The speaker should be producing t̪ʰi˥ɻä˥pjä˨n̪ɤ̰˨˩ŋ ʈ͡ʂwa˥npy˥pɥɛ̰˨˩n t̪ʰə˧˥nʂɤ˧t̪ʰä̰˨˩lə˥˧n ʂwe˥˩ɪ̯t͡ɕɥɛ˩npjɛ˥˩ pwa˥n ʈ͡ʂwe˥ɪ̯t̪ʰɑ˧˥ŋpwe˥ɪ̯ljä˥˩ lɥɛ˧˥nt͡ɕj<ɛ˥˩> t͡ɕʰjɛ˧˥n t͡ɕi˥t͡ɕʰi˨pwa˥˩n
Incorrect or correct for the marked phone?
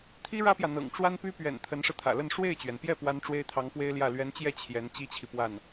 correct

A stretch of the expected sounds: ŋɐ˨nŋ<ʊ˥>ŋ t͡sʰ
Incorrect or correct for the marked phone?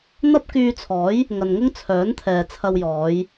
correct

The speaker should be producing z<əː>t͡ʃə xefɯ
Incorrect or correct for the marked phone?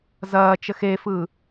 incorrect: ɐː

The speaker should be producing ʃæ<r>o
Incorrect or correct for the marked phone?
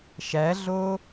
incorrect: ɮ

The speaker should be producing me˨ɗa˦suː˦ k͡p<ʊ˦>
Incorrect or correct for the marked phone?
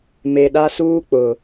incorrect: ʊ˨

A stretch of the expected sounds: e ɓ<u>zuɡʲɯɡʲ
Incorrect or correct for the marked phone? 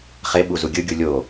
correct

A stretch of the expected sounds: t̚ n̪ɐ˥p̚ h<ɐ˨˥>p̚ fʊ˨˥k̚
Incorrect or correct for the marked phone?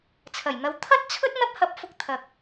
incorrect: ɐ˧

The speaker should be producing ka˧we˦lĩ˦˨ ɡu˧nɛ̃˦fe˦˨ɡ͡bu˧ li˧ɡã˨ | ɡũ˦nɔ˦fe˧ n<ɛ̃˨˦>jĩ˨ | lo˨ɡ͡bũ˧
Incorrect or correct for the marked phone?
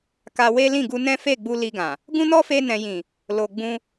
incorrect: ɛ̃˨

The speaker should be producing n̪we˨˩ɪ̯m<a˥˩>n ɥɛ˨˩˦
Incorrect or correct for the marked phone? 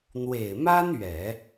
incorrect: a˥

